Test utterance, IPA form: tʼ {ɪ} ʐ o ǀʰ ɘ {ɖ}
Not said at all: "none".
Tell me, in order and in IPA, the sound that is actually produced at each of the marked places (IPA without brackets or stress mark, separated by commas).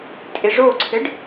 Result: ɪ, ɖ